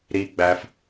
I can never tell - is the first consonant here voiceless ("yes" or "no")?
no